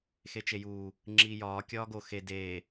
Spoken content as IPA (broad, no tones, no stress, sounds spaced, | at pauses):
x e t͡ʃ e j uː | ŋ͡ǁ iː j ɒː kʲ ɒː ɡ o x e d eː